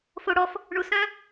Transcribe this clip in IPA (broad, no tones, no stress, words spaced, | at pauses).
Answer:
foɽɔf | ɳusœ̃